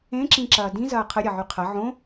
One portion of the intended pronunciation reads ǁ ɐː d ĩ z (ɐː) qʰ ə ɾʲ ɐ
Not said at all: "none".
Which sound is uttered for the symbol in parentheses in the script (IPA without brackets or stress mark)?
ɐː